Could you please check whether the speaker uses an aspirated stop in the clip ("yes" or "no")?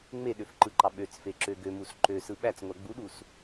no